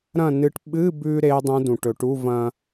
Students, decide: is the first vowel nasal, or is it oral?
nasal